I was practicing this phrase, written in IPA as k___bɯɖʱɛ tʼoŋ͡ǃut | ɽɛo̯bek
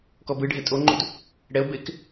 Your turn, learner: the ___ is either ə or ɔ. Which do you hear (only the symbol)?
ɔ